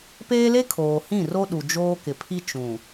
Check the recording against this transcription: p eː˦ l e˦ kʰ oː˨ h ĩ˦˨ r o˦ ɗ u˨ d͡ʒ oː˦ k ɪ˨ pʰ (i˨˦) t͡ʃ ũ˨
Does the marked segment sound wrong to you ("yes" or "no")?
yes